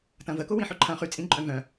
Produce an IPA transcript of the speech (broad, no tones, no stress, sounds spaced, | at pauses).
t ɐ̃ v ə k ʊ w ĩ ħ ʏ ǃʰ ɐ̃ χ y t͡sʼ ĩ ǃʼ œ̃ v œ̃